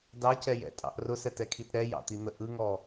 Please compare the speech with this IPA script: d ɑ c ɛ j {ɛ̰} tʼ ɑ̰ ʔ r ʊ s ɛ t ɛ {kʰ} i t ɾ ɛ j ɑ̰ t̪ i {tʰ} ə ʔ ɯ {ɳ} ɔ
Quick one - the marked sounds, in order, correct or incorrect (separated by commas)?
correct, correct, incorrect, incorrect